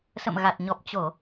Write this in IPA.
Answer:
s ə̰˧˨ m ɣ a˨˩ t̚ ɲ ɔ˨˩ p̚ t͡ɕ o˧˩˨

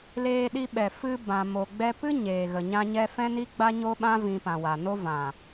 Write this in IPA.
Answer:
l eː˧ ɗ i˧ ɓ ɛ˨ f ɨ˦ b ã˧ m o˧ ɡ͡b ɛ˦ p ɨ˦ ɲ eː˨ ɣ ə˨ ɲ ã˦ ɲ ɛ˦ f ɛ̃˦ n i˦ ɡ͡b a˦ ɲ o˦ ɓ ã˦ v ĩ˧ p ã˨ w a˨ n o˦ v ã˨

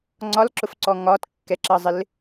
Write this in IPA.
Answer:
ŋ͡ǀ ɒ l ǁ ʊ f ǀ ɔ ŋ ɒ t kː ɛ ǁ ʌ zˤ ɪ l

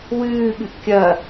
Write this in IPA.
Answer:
w ɨː ɠ ɨ ʔ kʲ ɐ

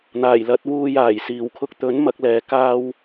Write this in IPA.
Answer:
n̪ aː˨˩ j l ɐ˨˥ t̚ w uː˧ j aː˨˩ j s iː˨˩ w kʰ ʊ˧ k̚ t̪ ɵ˨˥ n m ɐ˨˥ k̚ l ɛː˨˧ k aː˥ w

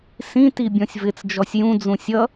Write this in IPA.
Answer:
s ĩ t i bʲ ɔ̃ sʲ v ɪ t͡s d͡ʒ ɔ sʲ j ũ d͡z ũ sʲ ʌ

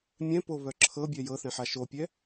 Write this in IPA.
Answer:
mʲ ɛ̃ p o β œ ǁʰ ɤ bʲ ɛ j ɤ θ ɛ̃ ħ a ʃ o pʲ ɛ

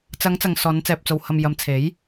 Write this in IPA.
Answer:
t͡s ɐ˨˧ ŋ t͡s ɐ˨ ŋ s ɔː˨˧ n t͡s ɛː˨ p̚ t͡s o˨ w h ɐ˨ m j ɐ˨˧ m t͡sʰ e˨˥ j

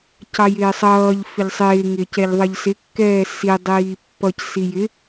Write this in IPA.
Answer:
c ɑ j ɪː sˤ ʌː ʎ f ɪ ʎ sˤ ɪː ŋ ɪː c ɛ ʎ ðˤ ʌ ʎ s ɪ kː ɛː s i dˤ iː pː ʌ c s i j ɪ

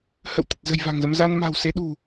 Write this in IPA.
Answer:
h ə̰˧˨ w t̪ ə˨˩ t̚ z ə̤˨˩ j v a̤˨˩ ŋ z ə˧ m z a˧ n m a̤˨˩ w s e˨˦ ɗ ṳ˨˩

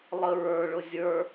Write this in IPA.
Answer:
lˠ ə ɹ ə˞ ɭ ʊ zʲ ə˞

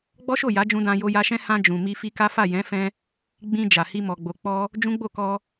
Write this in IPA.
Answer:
ɡ͡b ɔ˦ ʃ o˦˨ j a˨˦ d͡ʒ ũ˧ d ã˧ j o˧ j a˧ ʃ ɛ̃˦ h ã˧ d͡ʒ ũ˨ m i˧ f i˧ k a˦ f a˦˨ j ɛ̃˨˦ f ɛ̃˧ | ɡ͡b ĩ˧ d͡ʒ a˨ h i˧ m ɔ˨ ɡ͡b o˨ k͡p ɔ˧ | d͡ʒ ũ˦ ɡ͡b o˦˨ k ɔ˧

